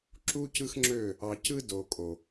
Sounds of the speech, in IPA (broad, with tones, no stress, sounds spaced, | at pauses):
ǁ u˦ c ɯ˦ x ŋ͡ǁ ø˦˨ | ɑ˨ c ɯ˦ d o˨ kʼ o˨